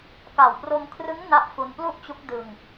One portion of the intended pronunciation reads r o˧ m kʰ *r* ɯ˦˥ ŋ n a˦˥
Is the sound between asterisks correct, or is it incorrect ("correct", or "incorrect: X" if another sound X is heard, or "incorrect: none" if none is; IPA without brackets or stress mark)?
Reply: correct